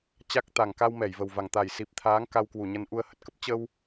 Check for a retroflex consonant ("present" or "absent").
absent